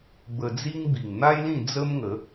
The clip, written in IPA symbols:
bə˧ d͡zi˦ŋbi˨˩ŋ n̪a˦jlĩ˥˧ d͡zə˦mŋə˨˦

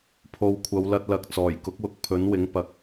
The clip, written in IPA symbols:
pʰo˨wkʷʰɐ˨˧wlɐ˧t̚lɐ˨˥k̚ t͡sɔː˨˩jkʊ˨˥k̚wʊ˧k̚ pʰɵ˨˥nwɪ˨˥ŋ pɐ˨k̚

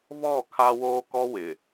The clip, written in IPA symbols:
βɔ˦˨kʰa˦woː˦ kɔ˦wɪ˨

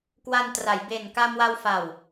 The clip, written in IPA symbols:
kwa˧ntra˩˦jbe˨˩n ka˧mwa˧wfa˨˩w

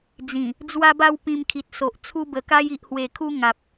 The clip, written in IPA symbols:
d͡zĩ˨˩ | d͡zwa˧ba˧w pĩ˧mkʰi˨t̚so˨ʔ t͡sʰu˧bə˨˩ka˧j i˨ʔhwe˨˩kʰu˧ ŋa˨p̚

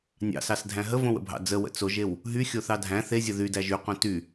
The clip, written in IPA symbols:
nʲɑ̰sɑsdʱæ̃ ɦəvõwə̰bʱɑ̰ d͡zəwə̰ t͡soʒew | ɦyxʲoθɑ dʱæ̃ θezʲə ðydæʒ yqõ ty

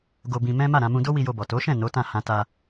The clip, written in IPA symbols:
ɡo˧bĩ˧ mɛ̃˦ ma˦˨ɾã˧mũ˧ do˦wi˧jo˧bɔ˨ to˨˦ʃɛ̃˦˨ no˨˦tã˦˨ hã˧ta˧

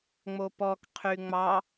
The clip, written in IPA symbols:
ŋ͡mopɔk qʰyŋ͡mɑ

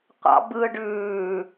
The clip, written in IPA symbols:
qʷɑ̰ bɯ ɖʉː

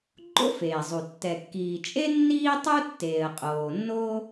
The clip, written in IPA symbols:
ɡ͡ǃo̰˥feː˩zˤu˩ tːɛ˩kːiː˩t͡ʃʼe˥ nːiː˥tˤu˥ tːeː˩ə̯qʼoː˩nːo˥

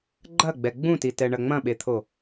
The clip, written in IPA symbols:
ɡ͡ǃɐɡ͡bɛ ɡ͡bũtitɛɳɐ ŋ͡mɐ̃ɓet̪ʰo

